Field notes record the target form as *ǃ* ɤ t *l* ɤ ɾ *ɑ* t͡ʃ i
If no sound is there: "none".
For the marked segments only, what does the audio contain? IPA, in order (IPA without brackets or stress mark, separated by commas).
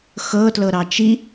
x, l, ɑ